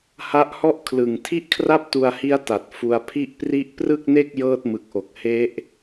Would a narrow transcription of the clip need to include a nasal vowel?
no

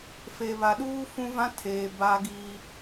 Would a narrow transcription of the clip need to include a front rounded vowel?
no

